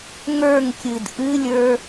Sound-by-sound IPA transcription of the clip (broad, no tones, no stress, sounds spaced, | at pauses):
ŋ ə˞ ŋ kʲ ɨ d ʔ ɨ lʲ ə˞